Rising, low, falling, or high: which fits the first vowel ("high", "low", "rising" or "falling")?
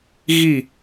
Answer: falling